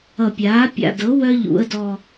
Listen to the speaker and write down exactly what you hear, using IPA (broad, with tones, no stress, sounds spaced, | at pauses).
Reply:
ʌ˨˩ pʲ aː˩˥ pʲ a̰˨˩ d ɤ˩˥ w œ˦ ʎ ṵ˩˧ ə̯ d ɔ˨˩